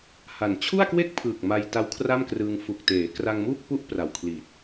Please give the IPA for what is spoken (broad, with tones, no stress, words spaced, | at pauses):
ha˨˩n t͡ɕʰu˥˩a̯kwe˥˩k̚pʰɯː˨˩k̚ ma˧j ta˦˥wkʰra˥˩mkrɯː˧ŋ fu˨˩k̚teː˩˦kra˧ŋmuː˥˩k̚ pu˥˩ʔpra˨˩wkʰli˨˩t̚